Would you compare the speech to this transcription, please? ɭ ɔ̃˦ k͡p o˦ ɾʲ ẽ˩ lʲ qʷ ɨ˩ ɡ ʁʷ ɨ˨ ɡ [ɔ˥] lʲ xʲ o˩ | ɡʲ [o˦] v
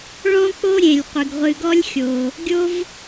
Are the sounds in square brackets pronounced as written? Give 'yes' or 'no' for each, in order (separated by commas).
yes, no